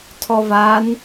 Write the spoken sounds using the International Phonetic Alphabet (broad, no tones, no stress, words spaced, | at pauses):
tʰɔvan